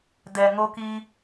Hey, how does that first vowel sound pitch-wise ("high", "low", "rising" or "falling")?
low